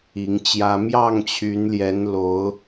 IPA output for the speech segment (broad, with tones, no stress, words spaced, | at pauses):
i˨˦ŋt͡ɕjä˦ mjɑ˥˨ŋt͡ɕʰy˨˦nljɛ˨˦nlo˨˦ʊ̯